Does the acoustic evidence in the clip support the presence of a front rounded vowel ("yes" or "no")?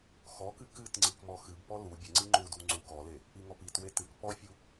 no